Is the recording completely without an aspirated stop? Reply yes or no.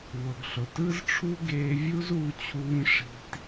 no